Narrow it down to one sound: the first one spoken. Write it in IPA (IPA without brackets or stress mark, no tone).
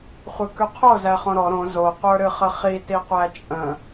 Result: χʷ